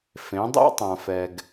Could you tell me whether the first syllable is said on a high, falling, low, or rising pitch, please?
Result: rising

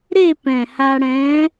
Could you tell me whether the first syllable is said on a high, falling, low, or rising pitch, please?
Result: falling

